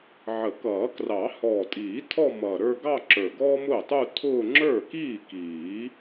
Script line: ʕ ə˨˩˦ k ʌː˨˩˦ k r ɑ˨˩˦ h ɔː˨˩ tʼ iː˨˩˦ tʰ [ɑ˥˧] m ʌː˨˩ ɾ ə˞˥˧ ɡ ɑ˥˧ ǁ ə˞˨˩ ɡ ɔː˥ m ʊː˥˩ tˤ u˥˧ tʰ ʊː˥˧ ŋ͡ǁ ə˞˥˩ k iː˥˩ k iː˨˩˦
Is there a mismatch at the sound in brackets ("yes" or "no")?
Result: yes